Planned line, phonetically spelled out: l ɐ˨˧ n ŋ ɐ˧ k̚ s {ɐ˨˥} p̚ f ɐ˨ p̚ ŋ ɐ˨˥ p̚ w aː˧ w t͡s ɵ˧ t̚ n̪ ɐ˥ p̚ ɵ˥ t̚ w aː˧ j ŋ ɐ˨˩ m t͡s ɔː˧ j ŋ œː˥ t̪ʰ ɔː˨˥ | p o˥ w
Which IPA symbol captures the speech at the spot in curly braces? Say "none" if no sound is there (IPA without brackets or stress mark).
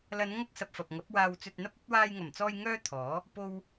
ɐ˨